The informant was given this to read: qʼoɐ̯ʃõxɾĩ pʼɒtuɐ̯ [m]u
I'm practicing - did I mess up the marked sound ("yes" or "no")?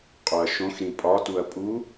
yes